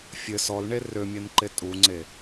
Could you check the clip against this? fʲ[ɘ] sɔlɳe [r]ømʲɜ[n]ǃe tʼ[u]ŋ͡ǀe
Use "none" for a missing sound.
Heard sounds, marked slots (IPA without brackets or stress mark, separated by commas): ɘ, r, n, u